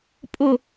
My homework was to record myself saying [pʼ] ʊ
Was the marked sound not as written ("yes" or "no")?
no